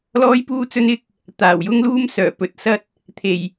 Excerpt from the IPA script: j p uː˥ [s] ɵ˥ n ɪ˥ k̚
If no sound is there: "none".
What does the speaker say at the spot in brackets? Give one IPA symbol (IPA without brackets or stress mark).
t͡s